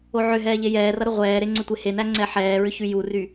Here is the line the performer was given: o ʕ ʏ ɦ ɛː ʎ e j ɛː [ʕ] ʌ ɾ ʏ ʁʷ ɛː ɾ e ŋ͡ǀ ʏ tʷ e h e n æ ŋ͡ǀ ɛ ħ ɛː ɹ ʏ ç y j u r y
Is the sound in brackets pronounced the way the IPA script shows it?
no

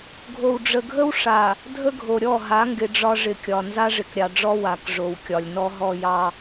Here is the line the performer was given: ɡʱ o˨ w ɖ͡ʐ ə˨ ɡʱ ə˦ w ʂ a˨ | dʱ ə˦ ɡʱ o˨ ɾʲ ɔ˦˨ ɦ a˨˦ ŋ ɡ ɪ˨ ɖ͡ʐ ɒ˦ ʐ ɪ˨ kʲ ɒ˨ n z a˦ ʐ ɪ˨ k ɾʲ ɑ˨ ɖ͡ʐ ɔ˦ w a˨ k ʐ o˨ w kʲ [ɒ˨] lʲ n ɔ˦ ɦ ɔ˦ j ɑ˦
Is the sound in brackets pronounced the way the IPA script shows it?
yes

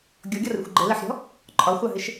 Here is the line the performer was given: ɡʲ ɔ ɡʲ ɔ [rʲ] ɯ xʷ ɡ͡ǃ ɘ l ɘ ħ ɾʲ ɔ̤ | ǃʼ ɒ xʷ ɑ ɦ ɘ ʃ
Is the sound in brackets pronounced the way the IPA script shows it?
no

